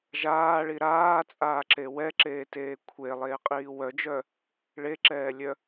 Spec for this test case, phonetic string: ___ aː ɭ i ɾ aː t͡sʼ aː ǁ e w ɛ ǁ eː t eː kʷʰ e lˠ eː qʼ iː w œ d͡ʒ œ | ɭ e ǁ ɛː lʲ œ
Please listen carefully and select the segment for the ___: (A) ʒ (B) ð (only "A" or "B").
A